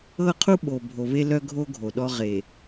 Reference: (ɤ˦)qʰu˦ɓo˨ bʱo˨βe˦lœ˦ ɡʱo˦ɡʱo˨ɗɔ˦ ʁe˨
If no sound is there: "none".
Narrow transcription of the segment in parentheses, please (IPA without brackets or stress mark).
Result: ɤ˦